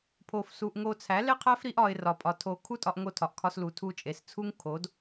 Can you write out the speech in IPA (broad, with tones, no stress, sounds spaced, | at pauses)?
pʰ o˧ f s u˧ ʔ ŋ o˧ t͡sʰ æ˨˦ l e˦ qʰ æ˦ f ɾ i˦ ʔ ɒ˧ ɪ̯ r ɒ˨ pʼ ɒ˨ tʰ o˨ kʰ u˦ tʼ ɒ˧ ʔ ŋ o˧ tʰ ɒ˨ ʔ kʰ ɒ˧ s l u˨ tʰ u˧ t͡ʃʼ e˨ s t͡sʰ u˦ ŋ kʰ o˨˦ d